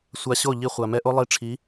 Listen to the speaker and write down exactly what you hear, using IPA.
sʷa˧ɕo˦˨ ʎi˧χʷa˨ mɛ˧ʔo˦ lˠi˧ʈ͡ʂʰi˨˦

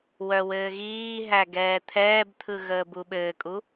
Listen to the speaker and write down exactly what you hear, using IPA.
wœwɘːɣiːɦæ ɡɛːt̪ʰɛːbt̪ʰɯ ɣəːbuɓɘːkʼu

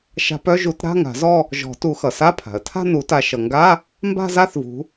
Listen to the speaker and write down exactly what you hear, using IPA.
ʃa̤˨˦pœ˥˧ʒu˨˩˦t ɾa̤˧˥˧ŋa̤˨˩˦zɔ˥˧ | ʒɔ̤˨˩˦tu˨˩˦xʌ˩sa˧˥˧ pʰa̤˩ə̯tʰa̤˥˧nu˨˩˦ta˨˦ ʃʌ˩ŋɡa˧˥˧ | mba̤˥˧za˥˧θvṳ˨˦

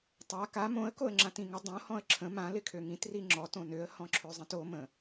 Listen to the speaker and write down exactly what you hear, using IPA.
tˤa ka mõə̯ koə̯ŋ͡ǁãtĩŋə dˤõ hɔ̃ə̯ǁʰə̃ mã lɪkʰøŋĩt riŋ͡ǁɔt õnøə̯ hɔ̃ǁʰøzˤĩto mə̃

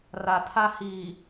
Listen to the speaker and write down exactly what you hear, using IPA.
ra˨tʰa˦hiː˨

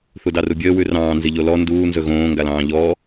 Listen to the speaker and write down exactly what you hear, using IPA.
θudɑrubʲəː wʉrɑ̃ː nziʎolɔ nduː nzɵɣõː ŋɡalɑ̃ːʎɔː

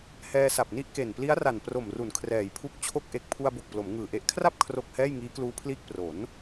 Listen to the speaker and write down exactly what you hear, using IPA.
hɛː˧sa˨˩p̚ni˥˩ʔke˨˩n pli˦˥a̯ra˨˩n pro˨˩mru˩˦n kʰrɛː˩˦jpʰu˦˥k̚t͡ɕʰo˥˩k̚ ʔe˨˩k̚pʰu˧a̯bo˨˩k̚ plo˩˦mŋɯː˨˩ʔe˦˥ʔ kʰra˥˩p̚ kʰro˦˥k̚hɛː˥˩j ŋiː˦˥kluː˦˥pʰliː˥˩k̚ pro˩˦n

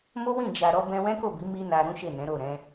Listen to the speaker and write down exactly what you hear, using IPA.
mo˦wĩ˦˨ d͡ʒa˨ɾɔ˧ bɛ̃˧wɛ̃˦ko˦˨bi˨˦ mi˦na˧ɾũ˦ ʃe˦˨nɛ̃˨˦ɾo˦˨ɾɛ̃˨˦

